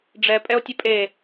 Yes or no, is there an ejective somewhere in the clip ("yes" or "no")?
yes